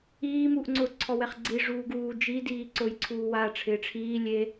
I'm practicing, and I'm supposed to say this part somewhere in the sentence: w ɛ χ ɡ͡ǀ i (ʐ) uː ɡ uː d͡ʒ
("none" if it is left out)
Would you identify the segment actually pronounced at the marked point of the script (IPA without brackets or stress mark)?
ʐ